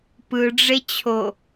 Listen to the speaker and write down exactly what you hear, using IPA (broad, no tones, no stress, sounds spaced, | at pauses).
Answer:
p ɯ ɖ͡ʐ e t͡ɕʰ o